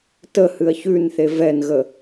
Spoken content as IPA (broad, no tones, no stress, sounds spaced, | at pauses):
t ə h ɨ ɐ̯ ç ʉ n θ e v ɛ n ɣ ə